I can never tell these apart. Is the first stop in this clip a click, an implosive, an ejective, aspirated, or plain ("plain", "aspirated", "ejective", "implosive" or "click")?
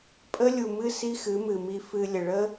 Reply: ejective